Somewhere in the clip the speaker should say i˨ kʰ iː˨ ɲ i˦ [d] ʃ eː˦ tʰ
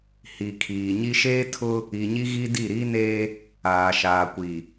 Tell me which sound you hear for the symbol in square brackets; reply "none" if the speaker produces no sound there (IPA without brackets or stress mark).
none